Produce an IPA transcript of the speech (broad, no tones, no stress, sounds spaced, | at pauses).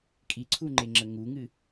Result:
kʼ i ǀʰ u ŋ͡ǃ e ŋ͡ǁ ə ŋ u ŋ ɨ